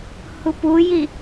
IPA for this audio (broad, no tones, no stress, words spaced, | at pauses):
hupuji